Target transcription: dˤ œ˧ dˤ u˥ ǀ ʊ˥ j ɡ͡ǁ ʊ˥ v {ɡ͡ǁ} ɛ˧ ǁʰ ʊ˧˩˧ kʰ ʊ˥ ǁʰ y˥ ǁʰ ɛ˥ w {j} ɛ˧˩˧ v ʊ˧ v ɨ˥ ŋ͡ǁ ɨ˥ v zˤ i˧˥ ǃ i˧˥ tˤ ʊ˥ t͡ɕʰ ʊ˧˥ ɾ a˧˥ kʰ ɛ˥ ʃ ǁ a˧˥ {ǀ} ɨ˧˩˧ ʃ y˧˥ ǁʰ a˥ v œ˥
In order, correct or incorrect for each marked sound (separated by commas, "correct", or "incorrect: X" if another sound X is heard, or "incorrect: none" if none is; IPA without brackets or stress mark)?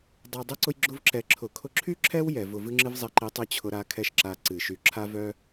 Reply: incorrect: ǁ, correct, correct